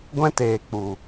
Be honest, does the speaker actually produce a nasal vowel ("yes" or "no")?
yes